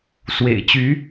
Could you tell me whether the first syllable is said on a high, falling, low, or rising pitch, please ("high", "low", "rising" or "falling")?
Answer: low